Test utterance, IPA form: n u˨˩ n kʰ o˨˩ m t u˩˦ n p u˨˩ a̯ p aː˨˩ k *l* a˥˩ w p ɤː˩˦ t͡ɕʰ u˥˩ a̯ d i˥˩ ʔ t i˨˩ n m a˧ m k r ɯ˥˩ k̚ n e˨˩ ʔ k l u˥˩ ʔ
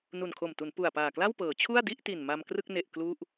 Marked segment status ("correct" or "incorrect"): correct